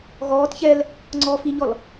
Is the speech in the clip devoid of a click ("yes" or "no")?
no